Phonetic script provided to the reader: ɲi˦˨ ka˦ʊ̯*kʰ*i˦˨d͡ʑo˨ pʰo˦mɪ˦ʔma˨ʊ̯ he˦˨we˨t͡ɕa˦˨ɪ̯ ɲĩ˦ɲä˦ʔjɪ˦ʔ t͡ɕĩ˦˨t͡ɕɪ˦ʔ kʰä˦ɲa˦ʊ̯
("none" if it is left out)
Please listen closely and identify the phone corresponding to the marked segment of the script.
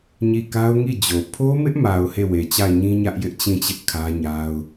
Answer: ŋ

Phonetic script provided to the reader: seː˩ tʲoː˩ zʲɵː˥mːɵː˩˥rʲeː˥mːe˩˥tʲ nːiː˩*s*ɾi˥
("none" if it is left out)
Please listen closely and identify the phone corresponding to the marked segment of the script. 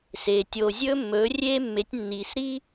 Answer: s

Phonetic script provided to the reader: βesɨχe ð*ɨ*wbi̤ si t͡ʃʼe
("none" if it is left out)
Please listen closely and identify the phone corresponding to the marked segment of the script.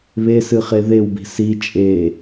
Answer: e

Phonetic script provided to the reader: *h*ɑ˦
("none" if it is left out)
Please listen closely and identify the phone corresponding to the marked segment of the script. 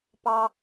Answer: p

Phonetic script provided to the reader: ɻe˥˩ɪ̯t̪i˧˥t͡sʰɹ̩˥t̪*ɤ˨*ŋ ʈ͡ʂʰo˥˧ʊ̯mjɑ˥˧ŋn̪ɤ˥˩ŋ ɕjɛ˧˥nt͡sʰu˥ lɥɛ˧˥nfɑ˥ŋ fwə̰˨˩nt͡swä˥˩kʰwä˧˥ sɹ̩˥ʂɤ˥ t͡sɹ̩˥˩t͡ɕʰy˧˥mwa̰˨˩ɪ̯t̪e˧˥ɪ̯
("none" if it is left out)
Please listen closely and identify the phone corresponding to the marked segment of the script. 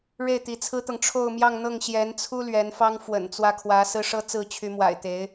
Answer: ɤ˨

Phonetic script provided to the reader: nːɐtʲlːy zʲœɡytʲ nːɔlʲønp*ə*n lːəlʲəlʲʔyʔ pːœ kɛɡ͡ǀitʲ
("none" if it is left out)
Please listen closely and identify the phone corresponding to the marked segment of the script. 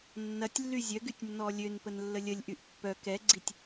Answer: ə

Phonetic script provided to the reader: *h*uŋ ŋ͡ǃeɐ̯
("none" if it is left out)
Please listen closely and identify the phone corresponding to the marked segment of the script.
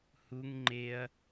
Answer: h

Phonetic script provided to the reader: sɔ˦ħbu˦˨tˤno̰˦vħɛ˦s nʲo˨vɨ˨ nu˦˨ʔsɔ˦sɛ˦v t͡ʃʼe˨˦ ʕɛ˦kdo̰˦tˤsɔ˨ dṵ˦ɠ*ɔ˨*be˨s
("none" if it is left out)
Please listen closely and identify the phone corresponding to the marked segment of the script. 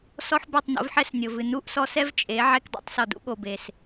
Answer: o˨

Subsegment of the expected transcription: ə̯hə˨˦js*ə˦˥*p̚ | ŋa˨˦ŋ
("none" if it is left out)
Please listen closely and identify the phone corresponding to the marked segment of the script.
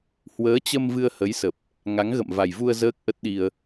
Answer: ə˨˩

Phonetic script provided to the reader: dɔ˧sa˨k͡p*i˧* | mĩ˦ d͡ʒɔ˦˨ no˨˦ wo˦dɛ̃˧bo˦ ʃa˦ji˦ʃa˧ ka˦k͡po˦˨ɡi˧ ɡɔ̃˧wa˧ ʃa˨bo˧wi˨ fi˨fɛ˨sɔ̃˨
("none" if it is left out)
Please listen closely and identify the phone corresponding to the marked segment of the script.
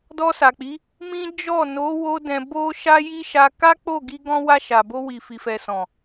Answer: i˨˦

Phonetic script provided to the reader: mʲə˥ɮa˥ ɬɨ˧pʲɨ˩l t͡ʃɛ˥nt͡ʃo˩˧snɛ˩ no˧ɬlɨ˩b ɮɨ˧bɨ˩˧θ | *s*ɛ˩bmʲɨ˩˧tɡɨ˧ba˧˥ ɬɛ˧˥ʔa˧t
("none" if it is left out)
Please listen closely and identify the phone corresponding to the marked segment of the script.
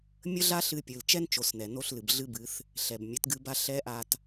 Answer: ɬ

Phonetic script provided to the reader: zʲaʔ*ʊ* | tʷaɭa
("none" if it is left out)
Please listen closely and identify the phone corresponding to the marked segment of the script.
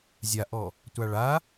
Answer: ɔ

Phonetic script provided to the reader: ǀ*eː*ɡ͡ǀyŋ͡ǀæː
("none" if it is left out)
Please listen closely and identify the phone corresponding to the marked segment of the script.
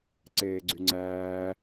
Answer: eː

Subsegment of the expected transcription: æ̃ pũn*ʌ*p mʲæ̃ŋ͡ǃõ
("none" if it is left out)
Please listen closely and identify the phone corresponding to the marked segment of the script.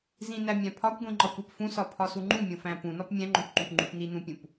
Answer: ɒ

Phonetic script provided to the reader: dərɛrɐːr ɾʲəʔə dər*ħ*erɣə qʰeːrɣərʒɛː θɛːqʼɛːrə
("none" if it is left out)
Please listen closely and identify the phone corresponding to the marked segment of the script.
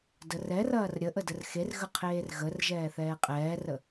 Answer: x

